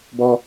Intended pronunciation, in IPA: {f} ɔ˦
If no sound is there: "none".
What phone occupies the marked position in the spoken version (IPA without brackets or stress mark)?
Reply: b